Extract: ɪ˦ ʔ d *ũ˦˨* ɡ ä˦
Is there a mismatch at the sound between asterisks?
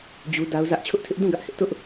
no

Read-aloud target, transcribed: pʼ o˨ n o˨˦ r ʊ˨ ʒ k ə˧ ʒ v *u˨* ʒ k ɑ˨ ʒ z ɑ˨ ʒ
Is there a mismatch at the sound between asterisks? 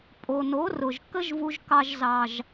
no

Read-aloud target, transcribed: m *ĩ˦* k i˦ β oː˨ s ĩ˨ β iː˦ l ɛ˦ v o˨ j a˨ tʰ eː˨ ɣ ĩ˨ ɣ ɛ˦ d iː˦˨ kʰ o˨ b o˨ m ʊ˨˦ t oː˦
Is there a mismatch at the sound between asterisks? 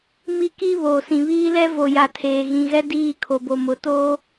yes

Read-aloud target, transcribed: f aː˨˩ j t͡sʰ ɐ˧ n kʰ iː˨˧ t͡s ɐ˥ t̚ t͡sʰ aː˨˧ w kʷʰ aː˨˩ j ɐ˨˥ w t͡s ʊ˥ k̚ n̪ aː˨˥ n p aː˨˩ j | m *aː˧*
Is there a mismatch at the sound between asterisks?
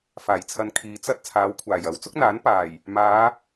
yes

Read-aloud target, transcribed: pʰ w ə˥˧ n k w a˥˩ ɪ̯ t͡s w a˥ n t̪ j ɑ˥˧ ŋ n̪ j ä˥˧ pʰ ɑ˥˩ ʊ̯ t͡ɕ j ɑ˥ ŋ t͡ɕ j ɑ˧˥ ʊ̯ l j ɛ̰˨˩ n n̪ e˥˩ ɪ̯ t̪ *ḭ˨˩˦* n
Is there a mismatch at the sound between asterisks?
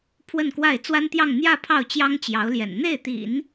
no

